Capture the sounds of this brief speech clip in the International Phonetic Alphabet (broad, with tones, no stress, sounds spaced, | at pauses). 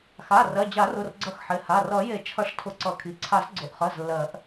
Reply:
x a˩˧˩ r ɜ˩˧˩ d͡ʑ a˨˩˦ r ʊ˩˧˩ r ɡ͡ǀ ʌ˨˩˦ x ħ ɪ˩˧˩ h a˩˧˩ r ʌ˨˩˦ j e˨˩˦ t͡ʃʰ ʌ˨˩˦ ʂ tʰ ʊ˨˩˦ ǀ ʌ˨˩˦ kʰ i˩˧˩ ǀʰ a˨˩˦ z ɡ͡ǀ ʊ˩˧˩ ʔ χ ɜ˩˧˩ z lː ɜ˨˩˦ ʔ